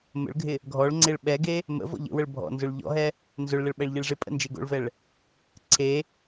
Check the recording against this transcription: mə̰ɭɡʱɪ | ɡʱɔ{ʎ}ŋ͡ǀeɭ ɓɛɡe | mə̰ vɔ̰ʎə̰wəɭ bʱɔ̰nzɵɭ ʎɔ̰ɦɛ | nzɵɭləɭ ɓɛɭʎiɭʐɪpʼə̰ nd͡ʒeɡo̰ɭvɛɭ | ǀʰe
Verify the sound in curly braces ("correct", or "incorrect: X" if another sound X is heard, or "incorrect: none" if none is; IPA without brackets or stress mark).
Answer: incorrect: ɭ